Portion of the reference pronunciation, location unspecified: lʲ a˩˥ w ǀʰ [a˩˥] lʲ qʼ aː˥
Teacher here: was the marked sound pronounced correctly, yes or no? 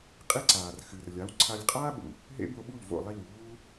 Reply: no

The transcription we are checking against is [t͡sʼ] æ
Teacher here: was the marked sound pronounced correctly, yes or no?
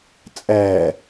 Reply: yes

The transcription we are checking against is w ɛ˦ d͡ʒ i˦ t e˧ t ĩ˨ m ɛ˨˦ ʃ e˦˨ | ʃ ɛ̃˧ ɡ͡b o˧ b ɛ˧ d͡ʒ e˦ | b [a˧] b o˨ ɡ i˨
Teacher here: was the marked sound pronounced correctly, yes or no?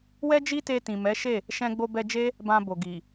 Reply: no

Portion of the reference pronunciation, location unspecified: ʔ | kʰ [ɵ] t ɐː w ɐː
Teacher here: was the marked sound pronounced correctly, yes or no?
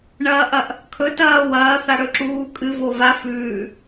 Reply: yes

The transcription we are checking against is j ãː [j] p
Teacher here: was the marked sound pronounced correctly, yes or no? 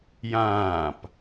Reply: no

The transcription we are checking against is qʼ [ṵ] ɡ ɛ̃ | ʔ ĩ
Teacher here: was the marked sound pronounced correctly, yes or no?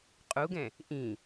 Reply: no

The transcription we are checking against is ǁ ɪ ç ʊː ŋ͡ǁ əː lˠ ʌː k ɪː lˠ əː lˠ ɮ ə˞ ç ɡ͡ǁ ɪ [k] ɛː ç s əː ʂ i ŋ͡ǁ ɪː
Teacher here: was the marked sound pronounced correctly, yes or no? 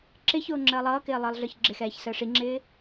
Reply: no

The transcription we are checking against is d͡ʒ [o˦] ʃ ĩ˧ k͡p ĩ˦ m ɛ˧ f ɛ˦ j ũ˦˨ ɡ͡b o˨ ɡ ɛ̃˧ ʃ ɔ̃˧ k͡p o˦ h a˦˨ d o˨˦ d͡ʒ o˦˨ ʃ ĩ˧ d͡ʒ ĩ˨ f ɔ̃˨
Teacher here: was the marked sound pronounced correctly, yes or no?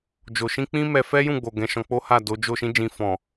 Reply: no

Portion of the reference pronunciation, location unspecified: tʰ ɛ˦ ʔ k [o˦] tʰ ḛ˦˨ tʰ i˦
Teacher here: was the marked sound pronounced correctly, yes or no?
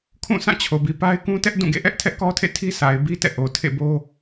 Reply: no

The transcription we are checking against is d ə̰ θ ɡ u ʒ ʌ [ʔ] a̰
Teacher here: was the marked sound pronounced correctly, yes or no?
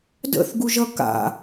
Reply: no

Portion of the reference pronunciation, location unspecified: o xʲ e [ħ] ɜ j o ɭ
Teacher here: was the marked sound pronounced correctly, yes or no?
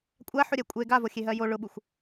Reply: no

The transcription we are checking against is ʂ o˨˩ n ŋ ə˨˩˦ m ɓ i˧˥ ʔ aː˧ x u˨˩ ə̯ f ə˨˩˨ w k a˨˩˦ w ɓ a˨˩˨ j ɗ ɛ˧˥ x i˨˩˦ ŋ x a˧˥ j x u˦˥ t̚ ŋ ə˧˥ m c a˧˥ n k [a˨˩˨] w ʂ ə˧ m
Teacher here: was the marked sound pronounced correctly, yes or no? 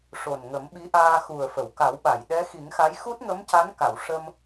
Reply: yes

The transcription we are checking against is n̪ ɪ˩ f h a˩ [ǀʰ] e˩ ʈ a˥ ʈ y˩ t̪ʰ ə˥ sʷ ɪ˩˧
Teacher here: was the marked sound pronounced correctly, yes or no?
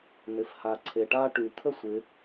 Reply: yes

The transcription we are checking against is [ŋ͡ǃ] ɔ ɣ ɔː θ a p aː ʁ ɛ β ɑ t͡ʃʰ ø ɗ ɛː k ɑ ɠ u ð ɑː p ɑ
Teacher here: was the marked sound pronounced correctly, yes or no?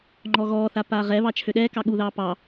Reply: yes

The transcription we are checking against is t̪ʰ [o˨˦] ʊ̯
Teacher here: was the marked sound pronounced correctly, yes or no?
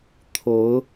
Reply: yes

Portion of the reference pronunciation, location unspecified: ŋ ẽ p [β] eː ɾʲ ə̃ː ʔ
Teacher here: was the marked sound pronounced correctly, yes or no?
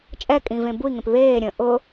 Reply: yes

